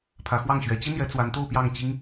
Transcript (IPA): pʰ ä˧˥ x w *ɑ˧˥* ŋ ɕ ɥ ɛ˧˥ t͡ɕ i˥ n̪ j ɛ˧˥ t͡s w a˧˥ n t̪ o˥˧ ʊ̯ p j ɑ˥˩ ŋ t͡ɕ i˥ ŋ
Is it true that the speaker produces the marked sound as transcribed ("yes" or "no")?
no